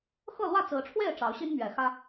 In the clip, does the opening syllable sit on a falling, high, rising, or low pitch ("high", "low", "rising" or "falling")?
falling